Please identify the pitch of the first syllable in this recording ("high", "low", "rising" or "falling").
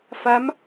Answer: rising